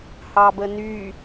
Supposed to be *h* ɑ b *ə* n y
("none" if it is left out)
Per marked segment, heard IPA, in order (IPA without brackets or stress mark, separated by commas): h, ə